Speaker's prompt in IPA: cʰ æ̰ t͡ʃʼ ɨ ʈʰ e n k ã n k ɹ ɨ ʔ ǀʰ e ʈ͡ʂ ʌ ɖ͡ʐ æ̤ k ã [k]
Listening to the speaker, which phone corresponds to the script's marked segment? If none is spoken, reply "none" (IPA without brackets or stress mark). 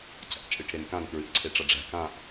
ʔ